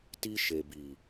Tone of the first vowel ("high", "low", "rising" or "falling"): high